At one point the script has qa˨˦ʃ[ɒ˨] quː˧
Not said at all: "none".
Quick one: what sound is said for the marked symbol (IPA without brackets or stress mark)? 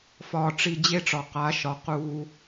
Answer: ɒ˨˦